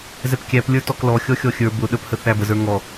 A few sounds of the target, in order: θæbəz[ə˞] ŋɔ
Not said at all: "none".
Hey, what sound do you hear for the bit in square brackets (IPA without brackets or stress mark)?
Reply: ə˞